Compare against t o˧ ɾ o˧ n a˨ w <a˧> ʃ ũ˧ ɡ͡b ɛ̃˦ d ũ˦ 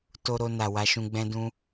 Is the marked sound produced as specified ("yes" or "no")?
yes